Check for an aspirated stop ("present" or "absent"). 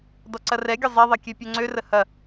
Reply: absent